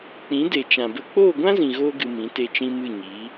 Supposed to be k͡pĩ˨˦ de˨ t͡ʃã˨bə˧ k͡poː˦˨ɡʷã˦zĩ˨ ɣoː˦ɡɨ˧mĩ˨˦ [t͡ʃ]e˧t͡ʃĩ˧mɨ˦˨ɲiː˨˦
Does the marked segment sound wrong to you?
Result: yes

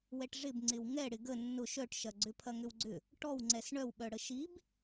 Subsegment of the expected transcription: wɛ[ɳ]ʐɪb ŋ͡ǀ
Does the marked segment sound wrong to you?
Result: yes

